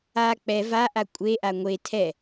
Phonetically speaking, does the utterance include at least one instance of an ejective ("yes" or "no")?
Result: yes